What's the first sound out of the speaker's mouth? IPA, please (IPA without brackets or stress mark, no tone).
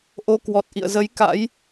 ʔ